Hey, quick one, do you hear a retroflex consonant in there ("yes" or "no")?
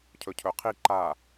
no